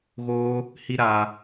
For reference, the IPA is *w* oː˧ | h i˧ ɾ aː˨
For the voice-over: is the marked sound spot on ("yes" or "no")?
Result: no